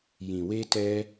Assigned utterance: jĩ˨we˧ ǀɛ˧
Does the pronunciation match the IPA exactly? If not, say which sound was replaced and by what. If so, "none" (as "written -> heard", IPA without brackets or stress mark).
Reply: ǀ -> t